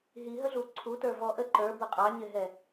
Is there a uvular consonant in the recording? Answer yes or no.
yes